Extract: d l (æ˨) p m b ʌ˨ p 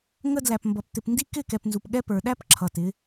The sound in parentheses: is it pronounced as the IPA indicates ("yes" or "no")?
yes